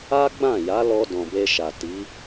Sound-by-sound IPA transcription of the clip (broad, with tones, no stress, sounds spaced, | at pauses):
a˦ ɡ͡b ã˦˨ j a˨˦ l ɔ˧ d ɔ̃˨ b e˧ ʃ a˨ t i˨˦